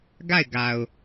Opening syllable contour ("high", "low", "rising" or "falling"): falling